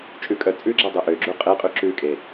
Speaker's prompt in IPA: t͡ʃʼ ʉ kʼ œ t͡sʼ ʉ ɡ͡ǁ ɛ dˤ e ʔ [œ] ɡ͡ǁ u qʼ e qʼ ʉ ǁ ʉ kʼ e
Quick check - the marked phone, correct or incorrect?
incorrect